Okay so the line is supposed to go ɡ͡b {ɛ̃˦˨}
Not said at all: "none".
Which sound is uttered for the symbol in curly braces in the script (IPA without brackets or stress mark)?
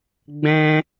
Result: ɛ̃˦